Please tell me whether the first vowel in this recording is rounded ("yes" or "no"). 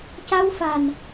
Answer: no